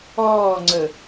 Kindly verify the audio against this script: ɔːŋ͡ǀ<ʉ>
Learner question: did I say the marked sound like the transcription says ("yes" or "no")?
no